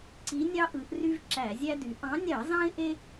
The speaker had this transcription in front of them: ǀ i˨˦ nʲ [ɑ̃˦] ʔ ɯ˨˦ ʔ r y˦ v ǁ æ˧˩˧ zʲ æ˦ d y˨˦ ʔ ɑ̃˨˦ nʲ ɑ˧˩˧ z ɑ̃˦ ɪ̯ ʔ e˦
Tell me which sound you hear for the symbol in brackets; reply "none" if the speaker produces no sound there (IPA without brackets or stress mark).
ɑ˦